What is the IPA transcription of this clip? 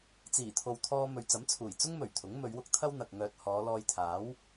t͡s iː˨˩ t̪ʰ o˨ w t̪ʰ ɔː˧ m ɵ˨ ɥ t͡s ɐ˨˥ m t͡sʰ uː˨˩ j t͡s ʊ˥ ŋ m ɵ˨˩ ɥ t̪ʰ ʊ˨˥ ŋ m ɵ˨˧ ɥ w ʊ˥ k̚ t̪ʰ ɐ˥ w n̪ ɐ˨ k̚ ŋ œː˧ t̚ h ɔː˨˧ l ɔː˧ j t̪ʰ aː˨˥ w

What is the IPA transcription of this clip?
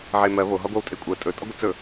ʕ e m ɜ β o ɦ ɒ ɡʷ ɜ w tʼ e kʷʼ ɜ tʼ ɵ tʼ ɒ ɡʷ ə t͡s ɵ

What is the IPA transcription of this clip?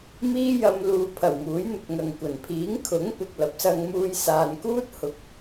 m iː˥ j ɐ˧ m l uː˨ pʰ ɐ˨˩ w m uː˨˥ j n̪ ɵ˨ t̚ ŋ ɐ˨ ŋ kʷ ɐ˨˩ n pʰ iː˨˥ ŋ kʰ ʊ˨˥ ŋ p ɪ˨ k̚ l ɐ˨˥ p̚ s ɐ˧ ŋ m uː˧ j s aː˨ n k uː˥ t̚ h ʊ˨˥ k̚

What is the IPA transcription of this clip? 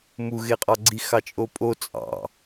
m u ɣ e qʼ ɑ ɡ͡ǀ i x ɑ t͡ʃʼ o pʼ o t͡sʼ ɑ̰

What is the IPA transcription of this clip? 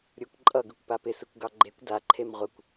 ɾʲ ɯ kʷ ǃʼ ʌ ɡ ɯ kʷ p a p ɪ s ɯ kʷ ɡ ɑ ɡ͡ǃ e kʷ d a ǃʰ e m ʁʷ ɪ kʷ

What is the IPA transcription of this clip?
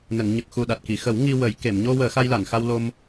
n ə˨˩˨ ŋ ɲ ə˨˩ k̚ x u˨˩ ɗ a˨˩ t̚ k i˨˩˨ x ə˨˩˦ w ŋ i˧ w ə˨˩˦ j k e˨˩˨ m ɲ o˧ w əː˨˩˦ x a˧ j l a˨˩˨ n x a˧ w l o˧ m

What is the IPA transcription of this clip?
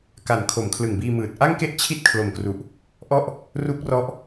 k a˨˩ n kʰ o˩˦ m kʰ l ɯ˨˩ ŋ b iː˧ m ɯː˨˩ t̚ ʔ a˥˩ ŋ k e˥˩ ʔ t͡ɕʰ i˥˩ t̚ kʰ l o˨˩ m k r u˨˩ ʔ | ʔ ɔ˥˩ ʔ | r u˦˥ k̚ r ɔ˦˥ ʔ

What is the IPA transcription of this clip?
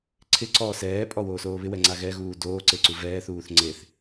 ǀʰ ɪ ǀ ɔː s ɛː pʼ ɔ w oː s oː β ɪ w ɛ ŋ͡ǀ a ɣ ɛ ɣ uː d oː ǀ e ǀ u v ɛː θ uː θ ŋ͡ǀ e θ

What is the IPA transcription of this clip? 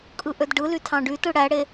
kʼ ɯ ʔ ø d ɖ ɯ l y tʰ ɑ̃ ɖ y t ɯ ɽ æ ɽ e

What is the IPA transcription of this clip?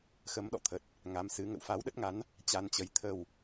x ə˨˦ m ɗ ɔ̰˧˨ t̪ʰ ə˨˩ t̚ | ŋ a˨˦ m s ɨ˨˦ ŋ ə̰˧˨ w f a˨˦ w ɗ ə˦˥ t̚ ŋ a˨˦ n | t͡ɕ a˧ n t͡ɕ ə˨˦ j t̪ʰ ə˨˩ w

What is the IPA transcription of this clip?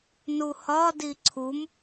n u h ɒ d i ǀʰ u m

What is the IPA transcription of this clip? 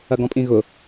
ɐ ɡ ɔ̃ pʼ ĩ ɣ ʊ

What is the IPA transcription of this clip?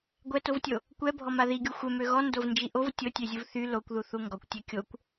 ɡʷ ɛ t o v tʲ o | kʷ ɛ bʱ ɔ m a ð i ɡʲ u xʷ ɛ m ø ɣ ɔ n d o v n d͡ʒ i ʔ o v tʲ o tʲ ø zʲ u v θ y l o kʷ ð u θ u ŋ ɡ ɔ kʷ tʲ ɛ kʲ o kʷ

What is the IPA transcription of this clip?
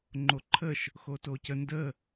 ŋ͡ǃ o ǃʰ ə ʃ | x o t oː c ə n d ə

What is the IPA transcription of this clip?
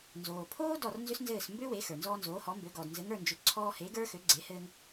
n z oː˩ pʰ oː˥ d ɔ˥˩ r n z ʏ˥ s n z ɘː˥˩ s m b ø˥ w e˩˥ x ə˞˩ n z ɔː˧ n z oː˩˥ h ɔ˩˥ m b ø˩˥ ɡ ɔ˩ d n z ɘ˩˥ ŋ ə˞˥˩ n d͡ʒ ʏ˩˥ ǀʰ ɔː˧ h e˩˥ ɡ ə˞˥ x ø˩˥ ɡ͡ǀ e˩˥ h ɘː˧ ŋ

